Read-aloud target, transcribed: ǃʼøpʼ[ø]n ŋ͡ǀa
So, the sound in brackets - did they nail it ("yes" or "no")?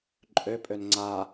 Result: yes